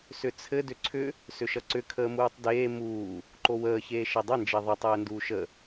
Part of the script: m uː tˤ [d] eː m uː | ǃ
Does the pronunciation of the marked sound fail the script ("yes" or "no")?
no